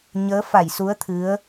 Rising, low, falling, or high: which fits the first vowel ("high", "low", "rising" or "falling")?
rising